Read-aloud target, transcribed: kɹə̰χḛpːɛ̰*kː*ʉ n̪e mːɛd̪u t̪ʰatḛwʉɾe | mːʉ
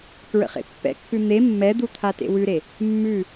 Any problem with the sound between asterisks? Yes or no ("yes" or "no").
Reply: no